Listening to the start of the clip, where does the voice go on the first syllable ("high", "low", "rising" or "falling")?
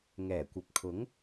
low